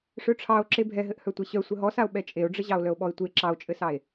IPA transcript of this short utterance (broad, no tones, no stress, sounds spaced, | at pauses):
ʂ œ ʈ͡ʂʰ ɑ o̯ ǁ e bʱ ɛ ɦ ɘ ʔ h œ tʷ e ɕ œ sʷ ɘ ɦ ɔ s a o̯ ɓ ɛ t͡ʃʼ e o̯ ɖ͡ʐ ɘ ʑ ɑ o̯ l œ o̯ ɓ ɔ e̯ tʷ e ǁ ɑ o̯ t͡ʃʼ ɘ s ɑ e̯